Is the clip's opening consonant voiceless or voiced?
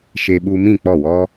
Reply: voiceless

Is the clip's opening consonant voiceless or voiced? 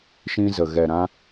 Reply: voiceless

